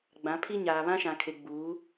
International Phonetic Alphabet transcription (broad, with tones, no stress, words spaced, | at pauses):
ɡ͡bã˨˦pʰi˦ɲaː˨ βã˦ʃã˨kʰe˨ ɡ͡buː˨˦